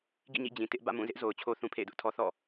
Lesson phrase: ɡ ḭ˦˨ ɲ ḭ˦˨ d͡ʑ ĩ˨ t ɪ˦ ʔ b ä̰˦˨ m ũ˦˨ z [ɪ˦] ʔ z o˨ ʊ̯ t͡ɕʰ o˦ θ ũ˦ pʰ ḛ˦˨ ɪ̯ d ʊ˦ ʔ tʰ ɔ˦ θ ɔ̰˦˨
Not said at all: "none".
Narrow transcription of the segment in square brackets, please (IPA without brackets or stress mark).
ɪ˦